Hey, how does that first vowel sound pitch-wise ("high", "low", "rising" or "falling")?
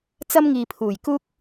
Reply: high